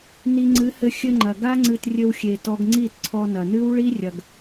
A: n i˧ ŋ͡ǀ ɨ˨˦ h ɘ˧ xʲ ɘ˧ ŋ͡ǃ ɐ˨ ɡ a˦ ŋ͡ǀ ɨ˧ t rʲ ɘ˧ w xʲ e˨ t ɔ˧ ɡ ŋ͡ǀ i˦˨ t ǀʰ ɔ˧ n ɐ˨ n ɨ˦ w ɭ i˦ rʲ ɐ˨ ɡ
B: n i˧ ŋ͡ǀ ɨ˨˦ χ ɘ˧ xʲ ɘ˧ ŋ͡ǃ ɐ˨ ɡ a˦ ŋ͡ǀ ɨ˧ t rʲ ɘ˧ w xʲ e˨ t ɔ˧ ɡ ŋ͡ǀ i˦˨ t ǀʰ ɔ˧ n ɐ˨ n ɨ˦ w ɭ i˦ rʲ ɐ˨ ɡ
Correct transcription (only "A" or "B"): A